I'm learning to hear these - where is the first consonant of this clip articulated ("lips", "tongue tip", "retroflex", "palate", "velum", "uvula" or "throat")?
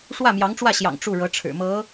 retroflex